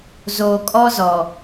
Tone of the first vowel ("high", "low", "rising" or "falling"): low